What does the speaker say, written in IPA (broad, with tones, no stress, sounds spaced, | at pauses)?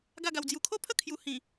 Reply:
ɡ a˥˧ ɡ a˧ w d͡z j u˧ kʰ o˦ pʰ ə˥˧ kʰ j u˧ h ĩ˨˩